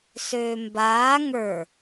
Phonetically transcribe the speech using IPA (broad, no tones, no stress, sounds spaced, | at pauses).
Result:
s øː m b aː ŋ ə˞